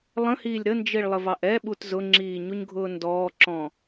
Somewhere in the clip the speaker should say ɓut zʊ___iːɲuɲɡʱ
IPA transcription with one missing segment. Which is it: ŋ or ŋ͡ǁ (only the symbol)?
ŋ͡ǁ